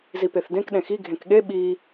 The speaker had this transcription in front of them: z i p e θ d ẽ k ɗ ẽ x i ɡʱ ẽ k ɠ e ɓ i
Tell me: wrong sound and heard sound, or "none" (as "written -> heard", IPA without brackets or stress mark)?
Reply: none